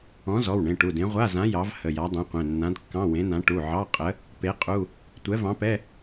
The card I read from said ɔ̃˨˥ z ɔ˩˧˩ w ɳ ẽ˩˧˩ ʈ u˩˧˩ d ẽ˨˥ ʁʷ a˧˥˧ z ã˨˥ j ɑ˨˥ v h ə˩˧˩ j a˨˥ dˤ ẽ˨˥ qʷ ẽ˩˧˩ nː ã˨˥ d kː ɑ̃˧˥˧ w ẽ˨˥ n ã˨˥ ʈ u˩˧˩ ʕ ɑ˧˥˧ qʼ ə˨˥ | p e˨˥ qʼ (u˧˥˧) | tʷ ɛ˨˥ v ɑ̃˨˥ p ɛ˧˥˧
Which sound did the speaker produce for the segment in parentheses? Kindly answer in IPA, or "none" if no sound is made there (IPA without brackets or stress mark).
u˧˥˧